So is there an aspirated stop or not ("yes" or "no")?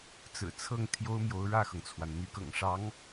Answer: yes